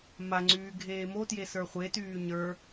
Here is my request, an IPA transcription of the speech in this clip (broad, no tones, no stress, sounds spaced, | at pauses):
m a ŋ͡ǀ yː ɡʱ eː m o t j e s ə˞ χʷ e t yː ɲ ə˞